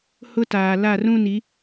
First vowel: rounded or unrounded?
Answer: rounded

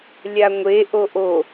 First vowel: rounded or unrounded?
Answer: unrounded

